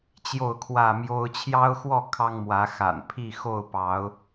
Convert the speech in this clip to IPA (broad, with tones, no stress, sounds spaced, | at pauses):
t͡ɕ j o˥˨ ʊ̯ kʰ w ä˥˨ m j o˦ ʊ̯ t͡ɕʰ j ɑ˦ ʊ̯ x w ɔ˥˨ kʰ ɑ˦ ŋ m w ä˨˦ x a̰˨˩ n pʰ i˥˨ x o˥˨ ʊ̯ p ɑ˨˦ ʊ̯